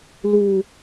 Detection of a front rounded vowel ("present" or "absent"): absent